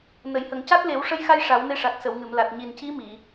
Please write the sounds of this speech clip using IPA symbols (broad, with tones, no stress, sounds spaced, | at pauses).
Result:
n ə˨˩˨ j h ə˨˩˨ ŋ c a˦˥ t̚ l e˨˩˦ w ʂ ə˧˥ j x a˧ j ʂ a˨˩˦ w n e˧˥ ʂ a˨˩ k̚ s ə˨˩˨ w ŋ ɨ˨˩˨ m l a˨˩ t̚ ɲ i˨˩ n c i˧˥ m i˨˩˨